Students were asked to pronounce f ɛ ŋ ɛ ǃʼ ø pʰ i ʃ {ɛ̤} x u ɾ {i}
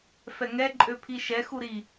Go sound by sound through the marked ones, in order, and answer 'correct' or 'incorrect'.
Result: incorrect: ɛ, correct

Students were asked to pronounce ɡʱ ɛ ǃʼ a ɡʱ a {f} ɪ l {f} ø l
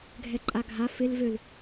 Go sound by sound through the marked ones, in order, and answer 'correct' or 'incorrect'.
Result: correct, incorrect: v

